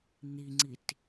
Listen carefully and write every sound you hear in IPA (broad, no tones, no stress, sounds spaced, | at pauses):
n̪ i ŋ͡ǀ i t